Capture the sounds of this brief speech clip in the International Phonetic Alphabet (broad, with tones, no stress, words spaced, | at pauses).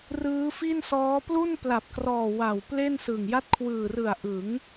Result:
rɯː˦˥fi˥˩nsɔː˦˥ plu˥˩npla˨˩p̚krɔː˨˩ wa˨˩w ple˥˩nsɯ˨˩ŋja˥˩t̚ kʰwɯː˨˩rɯ˨˩a̯ ʔɯ˩˦ŋ